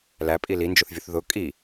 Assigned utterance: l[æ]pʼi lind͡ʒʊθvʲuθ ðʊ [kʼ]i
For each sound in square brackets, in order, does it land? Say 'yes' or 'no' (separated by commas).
yes, yes